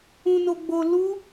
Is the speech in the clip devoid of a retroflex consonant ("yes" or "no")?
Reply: yes